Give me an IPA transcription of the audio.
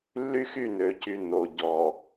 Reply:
lː y˦ x y˦˨ n ø˨ c y˨ n o˨ ɟ ɔ˨

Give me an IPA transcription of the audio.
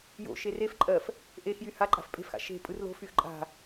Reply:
j o̰ ʃ e r e f ǃʼ ɜ f | ʔ e x j y h a ǃʼ a̤ f pʼ e̤ f x a̰ ʃ e̤ pʼ ɯ r l o̤ f y x ǃʼ a̤

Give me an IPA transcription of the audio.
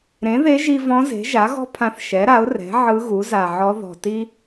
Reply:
ɾ ẽ˩˥ ð e˧˥ ʒ i˧ v ɔ̃˧˥ z e̤˩˥ ʒ a˩˥ ɣ ɔ̤˥ pʰ ã˧ θ ʃ ɛ˩˥ ɾ a˩˥ ʊ̯ r ɛ̤˩˥ ʕ ɯ˧˥ ɣ u˩˥ z a˨˩ ʕ ɔ˧˥ ð ɔ̤˨˩ t i˥

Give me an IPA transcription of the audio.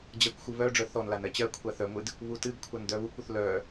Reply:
d͡ʑ ɐ kʷ xʷ ɨ β œ ɖ͡ʐ œ θ ɔ n l a n ɜ t͡ɕ ɜ kʷʰ a θ œ ŋʷ ɨ d | β u t ɨ ɡ kʷʰ a n d œ β u kʷ u θ l œ

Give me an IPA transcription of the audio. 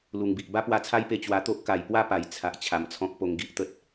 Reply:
l u˨˩ ŋ b i˨ ʔ b a˦ p w a˧ t͡sʰ a˦ j p e˧ t͡ɕ w a˧ t̪ o˦ ʔ k a˨˩ j p w a˥˧ p a˨˩ j t͡sʰ a˨ ʔ t͡ɕʰ a˨˩ m t͡sʰ ɔ̃˦ k̚ p o˧ ŋ ɡ i˦ ʔ t̪ ə˦ t̚

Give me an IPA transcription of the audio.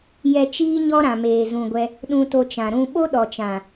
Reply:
j ɛ˧ t͡ʃ iː˦ ɲ ɔ˦ ɾ ã˨ m eː˨ z ũ˨ ɡʷ ɛ˧ | ɗ ũ˧ t o˧ t͡ʃ ã˨ ɾ ũ˧ ɓ o˦ ɗ ɔ˨ t͡ʃ ã˨

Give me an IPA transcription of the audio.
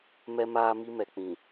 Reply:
m ɛ˦ m aː˦ m i˦ m ɛ˨ k͡p ĩ˨

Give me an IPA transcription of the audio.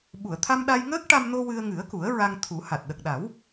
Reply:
ɓ u˨˩˨ ə̯ t̪ʰ a˧ m ɗ a˧ j ŋ əː˦˥ k̚ ʈ a˧ m n o˧ w ɨ˧ ə̯ ŋ ɨ˨˩˦ ə̯ k u˨˩˦ ə̯ ɹ a˧ ŋ t̪ʰ u˨˩˦ h a˨˩ t̚ ɗ ə˨˩ k̚ ɗ a˨˩˦ w

